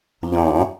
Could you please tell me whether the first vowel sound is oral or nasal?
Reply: nasal